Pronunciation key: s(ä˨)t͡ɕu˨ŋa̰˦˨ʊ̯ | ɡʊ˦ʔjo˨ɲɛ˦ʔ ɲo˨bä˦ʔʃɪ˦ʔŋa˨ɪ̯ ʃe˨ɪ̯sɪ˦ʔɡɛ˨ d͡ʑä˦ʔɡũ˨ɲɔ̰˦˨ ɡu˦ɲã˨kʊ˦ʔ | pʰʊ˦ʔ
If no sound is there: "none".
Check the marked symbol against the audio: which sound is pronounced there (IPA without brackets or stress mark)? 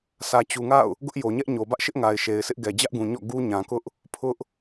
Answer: ä˨